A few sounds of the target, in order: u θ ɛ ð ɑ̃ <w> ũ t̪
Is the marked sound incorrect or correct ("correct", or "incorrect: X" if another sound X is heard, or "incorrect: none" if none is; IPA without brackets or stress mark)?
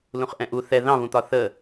incorrect: β